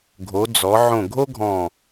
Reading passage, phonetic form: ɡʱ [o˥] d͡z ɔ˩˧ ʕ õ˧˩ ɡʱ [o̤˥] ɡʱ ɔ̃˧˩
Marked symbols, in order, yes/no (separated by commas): no, no